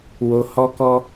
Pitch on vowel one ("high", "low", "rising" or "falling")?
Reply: low